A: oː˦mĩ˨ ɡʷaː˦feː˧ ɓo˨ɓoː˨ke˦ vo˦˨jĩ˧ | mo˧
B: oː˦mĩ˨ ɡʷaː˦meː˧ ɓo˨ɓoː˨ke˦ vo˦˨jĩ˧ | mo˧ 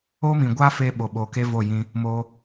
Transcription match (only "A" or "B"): A